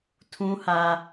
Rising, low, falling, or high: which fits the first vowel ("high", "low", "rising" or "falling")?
high